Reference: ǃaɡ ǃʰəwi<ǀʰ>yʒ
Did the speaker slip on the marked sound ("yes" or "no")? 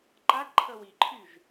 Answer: yes